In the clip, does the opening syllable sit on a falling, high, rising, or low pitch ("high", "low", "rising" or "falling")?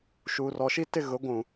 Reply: low